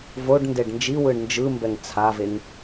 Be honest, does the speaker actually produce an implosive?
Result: no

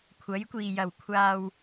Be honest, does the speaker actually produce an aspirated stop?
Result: yes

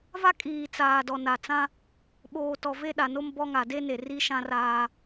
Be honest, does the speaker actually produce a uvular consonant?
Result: no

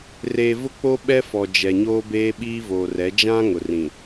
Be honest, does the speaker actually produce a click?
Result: no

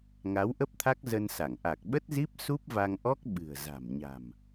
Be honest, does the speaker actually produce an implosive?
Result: yes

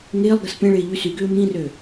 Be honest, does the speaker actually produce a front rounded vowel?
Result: yes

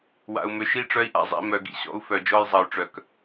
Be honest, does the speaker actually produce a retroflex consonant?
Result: yes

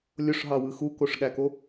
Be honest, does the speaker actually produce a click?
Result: no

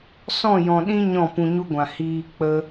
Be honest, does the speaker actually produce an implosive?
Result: yes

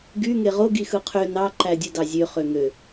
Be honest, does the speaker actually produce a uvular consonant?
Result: yes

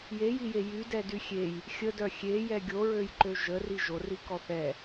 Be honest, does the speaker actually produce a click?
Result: yes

